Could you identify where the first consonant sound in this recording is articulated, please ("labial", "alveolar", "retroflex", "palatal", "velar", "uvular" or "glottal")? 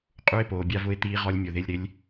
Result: uvular